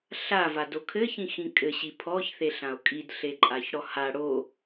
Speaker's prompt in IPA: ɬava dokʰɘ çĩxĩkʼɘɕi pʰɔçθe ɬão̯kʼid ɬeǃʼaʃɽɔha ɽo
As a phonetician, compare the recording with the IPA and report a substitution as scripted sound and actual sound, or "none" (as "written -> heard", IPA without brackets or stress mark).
ʃ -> ç